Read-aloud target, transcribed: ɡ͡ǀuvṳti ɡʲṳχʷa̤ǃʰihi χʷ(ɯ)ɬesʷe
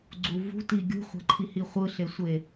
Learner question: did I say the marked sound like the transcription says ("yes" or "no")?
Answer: yes